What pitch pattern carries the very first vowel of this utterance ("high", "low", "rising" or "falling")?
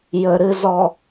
low